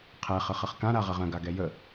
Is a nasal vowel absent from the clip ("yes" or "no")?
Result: no